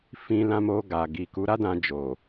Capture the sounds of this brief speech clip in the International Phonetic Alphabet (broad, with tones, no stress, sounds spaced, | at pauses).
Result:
f ĩ˧ l ã˧ m o˧ ɡ a˨ ɡ i˨ k u˨˦ ɾ a˦ d ã˧ d͡ʒ o˨